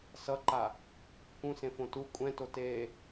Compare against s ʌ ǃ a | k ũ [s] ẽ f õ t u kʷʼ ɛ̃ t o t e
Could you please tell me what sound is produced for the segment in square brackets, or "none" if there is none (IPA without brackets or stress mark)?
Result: s